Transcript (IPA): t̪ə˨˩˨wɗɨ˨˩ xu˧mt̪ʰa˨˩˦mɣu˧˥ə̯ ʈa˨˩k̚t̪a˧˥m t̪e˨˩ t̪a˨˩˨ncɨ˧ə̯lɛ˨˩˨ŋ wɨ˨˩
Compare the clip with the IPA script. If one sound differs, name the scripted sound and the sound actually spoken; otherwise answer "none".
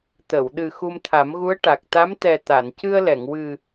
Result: e˨˩ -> ɛ˨˩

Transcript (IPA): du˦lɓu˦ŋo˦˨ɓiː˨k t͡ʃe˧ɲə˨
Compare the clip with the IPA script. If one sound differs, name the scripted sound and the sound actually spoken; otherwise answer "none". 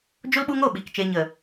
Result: d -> d͡ʒ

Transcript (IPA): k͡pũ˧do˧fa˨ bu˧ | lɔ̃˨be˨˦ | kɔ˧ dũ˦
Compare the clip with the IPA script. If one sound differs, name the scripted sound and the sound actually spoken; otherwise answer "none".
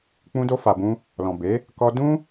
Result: u˧ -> ũ˧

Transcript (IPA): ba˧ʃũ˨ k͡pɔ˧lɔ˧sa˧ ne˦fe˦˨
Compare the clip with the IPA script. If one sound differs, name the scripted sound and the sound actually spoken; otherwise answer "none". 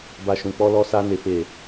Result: none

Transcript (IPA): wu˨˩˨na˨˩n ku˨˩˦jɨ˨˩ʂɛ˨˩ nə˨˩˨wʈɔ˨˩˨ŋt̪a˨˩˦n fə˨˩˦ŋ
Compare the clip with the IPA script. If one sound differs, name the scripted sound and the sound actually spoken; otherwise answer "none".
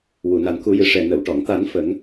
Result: none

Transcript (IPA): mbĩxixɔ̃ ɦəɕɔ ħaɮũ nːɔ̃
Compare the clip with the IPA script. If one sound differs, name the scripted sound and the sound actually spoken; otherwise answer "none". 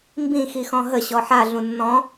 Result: none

